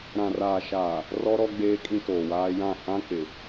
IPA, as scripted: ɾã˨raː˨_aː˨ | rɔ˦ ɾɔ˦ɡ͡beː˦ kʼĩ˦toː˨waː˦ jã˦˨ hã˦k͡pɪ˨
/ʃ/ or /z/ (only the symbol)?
ʃ